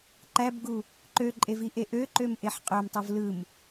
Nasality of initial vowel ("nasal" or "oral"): oral